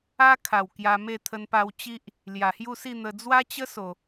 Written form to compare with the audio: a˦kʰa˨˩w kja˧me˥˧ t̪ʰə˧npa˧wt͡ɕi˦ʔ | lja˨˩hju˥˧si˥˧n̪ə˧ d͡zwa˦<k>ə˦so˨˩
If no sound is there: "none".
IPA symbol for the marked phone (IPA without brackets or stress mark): t͡ɕ